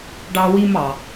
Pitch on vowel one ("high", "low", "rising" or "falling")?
high